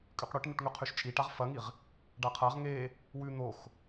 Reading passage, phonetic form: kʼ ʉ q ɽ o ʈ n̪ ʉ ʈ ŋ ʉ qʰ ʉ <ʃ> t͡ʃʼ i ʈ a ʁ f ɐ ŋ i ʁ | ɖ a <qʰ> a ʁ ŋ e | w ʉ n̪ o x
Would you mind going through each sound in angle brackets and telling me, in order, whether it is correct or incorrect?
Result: correct, correct

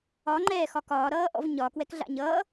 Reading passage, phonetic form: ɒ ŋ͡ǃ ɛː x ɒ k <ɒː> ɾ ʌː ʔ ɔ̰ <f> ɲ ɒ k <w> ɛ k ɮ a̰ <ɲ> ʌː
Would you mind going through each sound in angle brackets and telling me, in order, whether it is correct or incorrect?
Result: correct, incorrect: v, correct, correct

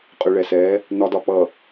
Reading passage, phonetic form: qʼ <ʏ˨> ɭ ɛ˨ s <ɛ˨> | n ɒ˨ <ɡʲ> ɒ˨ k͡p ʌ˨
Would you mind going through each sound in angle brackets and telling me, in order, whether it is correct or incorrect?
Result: correct, incorrect: ɛ˨˦, incorrect: d

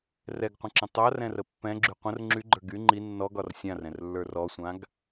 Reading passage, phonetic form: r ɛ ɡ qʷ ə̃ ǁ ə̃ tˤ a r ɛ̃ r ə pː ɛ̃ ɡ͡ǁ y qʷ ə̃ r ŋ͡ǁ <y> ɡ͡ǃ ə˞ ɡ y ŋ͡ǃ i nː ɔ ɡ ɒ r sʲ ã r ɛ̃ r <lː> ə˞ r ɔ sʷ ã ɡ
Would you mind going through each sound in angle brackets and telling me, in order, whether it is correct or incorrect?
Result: correct, correct

